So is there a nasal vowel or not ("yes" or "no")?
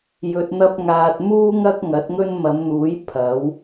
no